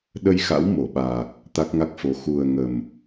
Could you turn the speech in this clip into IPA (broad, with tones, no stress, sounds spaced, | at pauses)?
ɗ ə˧ j x a̰˧˥ w m o˧˩ ɓ aː˨˩ k̚ | t̪ a˦˥ k̚ ŋ a˦˥ k̚ f o˧ x u˨˩ ə̯ ŋ ə˨˩ m